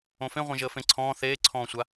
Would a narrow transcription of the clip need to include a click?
yes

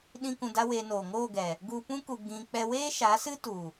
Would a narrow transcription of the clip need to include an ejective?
no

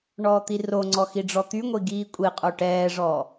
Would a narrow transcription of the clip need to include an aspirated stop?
no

